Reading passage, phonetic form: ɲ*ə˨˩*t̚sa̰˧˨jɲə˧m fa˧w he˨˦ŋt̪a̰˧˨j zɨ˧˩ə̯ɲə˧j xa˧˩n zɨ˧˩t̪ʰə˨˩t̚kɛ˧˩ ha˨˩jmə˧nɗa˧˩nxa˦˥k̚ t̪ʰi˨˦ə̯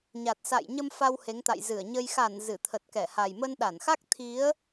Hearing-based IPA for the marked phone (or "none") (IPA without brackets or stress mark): a˨˩